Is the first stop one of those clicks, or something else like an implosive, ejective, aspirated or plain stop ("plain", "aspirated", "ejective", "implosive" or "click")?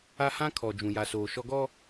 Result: aspirated